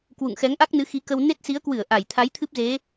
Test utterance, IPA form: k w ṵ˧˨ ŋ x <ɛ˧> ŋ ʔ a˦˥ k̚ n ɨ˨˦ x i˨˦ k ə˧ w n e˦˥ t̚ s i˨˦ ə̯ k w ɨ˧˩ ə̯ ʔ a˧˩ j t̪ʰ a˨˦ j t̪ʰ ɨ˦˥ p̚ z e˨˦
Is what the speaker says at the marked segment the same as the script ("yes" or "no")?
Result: no